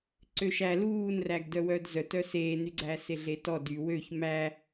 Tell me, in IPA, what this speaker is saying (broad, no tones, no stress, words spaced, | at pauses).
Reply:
ǀøʃæ luːnræɡ dœwœːdzœt œseːnyɡ͡ǀæ seɮetɔ dy wøç mæ